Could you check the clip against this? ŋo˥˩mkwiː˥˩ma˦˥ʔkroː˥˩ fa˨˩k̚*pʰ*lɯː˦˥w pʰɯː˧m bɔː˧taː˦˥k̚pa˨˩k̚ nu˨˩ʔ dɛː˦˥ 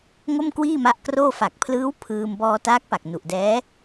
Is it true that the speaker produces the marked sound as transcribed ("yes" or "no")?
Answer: yes